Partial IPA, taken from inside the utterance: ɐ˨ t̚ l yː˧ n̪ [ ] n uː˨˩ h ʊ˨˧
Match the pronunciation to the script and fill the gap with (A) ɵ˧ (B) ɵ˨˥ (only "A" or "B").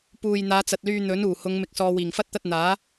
B